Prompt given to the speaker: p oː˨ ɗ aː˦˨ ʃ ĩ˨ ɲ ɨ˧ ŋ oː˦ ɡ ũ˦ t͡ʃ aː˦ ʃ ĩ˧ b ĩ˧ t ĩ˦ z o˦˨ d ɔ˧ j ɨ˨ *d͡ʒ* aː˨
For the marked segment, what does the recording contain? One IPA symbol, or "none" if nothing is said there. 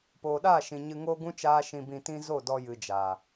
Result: d͡ʒ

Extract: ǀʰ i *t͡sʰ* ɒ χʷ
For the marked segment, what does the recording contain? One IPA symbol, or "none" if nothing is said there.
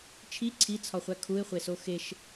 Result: t͡sʰ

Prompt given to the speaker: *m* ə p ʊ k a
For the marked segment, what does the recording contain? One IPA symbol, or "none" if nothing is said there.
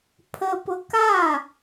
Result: pʰ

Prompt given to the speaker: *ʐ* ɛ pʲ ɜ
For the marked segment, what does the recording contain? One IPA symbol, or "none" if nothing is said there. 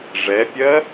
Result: ʐ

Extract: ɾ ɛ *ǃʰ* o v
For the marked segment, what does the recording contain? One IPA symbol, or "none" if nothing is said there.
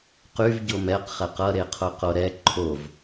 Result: ǃʰ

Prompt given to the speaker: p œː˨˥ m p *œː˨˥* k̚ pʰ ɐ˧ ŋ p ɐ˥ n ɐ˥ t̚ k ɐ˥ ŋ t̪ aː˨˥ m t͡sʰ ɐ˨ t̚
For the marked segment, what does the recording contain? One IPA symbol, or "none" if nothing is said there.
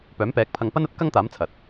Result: ɛː˨˥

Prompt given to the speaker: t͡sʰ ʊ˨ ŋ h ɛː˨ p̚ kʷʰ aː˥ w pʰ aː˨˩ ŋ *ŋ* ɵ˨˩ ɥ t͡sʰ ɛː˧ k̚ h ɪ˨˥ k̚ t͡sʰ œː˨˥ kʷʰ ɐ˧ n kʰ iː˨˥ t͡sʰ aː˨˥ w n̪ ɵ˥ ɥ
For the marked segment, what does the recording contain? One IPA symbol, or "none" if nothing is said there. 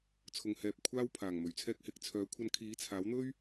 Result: m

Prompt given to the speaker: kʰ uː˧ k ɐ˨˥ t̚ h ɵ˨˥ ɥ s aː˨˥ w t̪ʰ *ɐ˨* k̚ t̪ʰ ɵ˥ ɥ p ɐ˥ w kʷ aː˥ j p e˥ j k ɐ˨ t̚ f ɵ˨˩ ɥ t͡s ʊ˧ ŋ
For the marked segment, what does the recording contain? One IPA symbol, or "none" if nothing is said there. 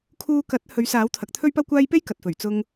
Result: ɐ˨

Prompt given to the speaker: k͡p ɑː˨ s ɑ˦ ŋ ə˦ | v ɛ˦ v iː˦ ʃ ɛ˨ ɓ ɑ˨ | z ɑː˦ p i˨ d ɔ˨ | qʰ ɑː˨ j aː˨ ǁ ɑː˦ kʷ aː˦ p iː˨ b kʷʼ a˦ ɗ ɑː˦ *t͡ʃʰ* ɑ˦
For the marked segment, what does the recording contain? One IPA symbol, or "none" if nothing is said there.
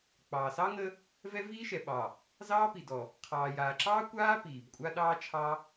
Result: t͡ʃʰ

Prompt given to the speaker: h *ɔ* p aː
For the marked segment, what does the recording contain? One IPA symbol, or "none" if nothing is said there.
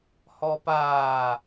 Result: ɔ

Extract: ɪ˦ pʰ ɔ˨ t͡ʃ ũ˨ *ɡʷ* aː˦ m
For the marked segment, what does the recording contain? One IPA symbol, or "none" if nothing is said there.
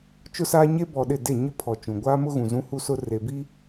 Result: ɡʷ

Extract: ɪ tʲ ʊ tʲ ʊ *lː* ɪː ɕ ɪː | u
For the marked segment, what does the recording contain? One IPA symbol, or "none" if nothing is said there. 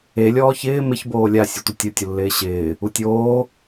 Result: lː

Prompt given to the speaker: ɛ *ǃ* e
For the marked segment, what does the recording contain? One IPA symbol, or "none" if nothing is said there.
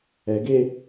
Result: ɡ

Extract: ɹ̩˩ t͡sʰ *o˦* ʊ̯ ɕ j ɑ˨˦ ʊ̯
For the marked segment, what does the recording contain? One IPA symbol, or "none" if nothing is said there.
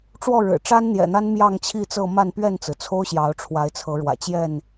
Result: o˦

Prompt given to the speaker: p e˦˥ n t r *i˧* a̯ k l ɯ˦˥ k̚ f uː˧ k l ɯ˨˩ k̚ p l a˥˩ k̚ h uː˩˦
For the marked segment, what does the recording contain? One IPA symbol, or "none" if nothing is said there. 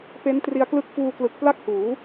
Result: i˧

